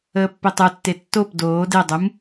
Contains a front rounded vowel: no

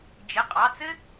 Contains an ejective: yes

